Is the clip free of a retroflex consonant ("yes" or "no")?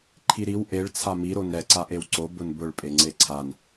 no